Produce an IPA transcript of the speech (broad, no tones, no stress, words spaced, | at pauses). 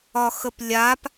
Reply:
ɒxəplʲap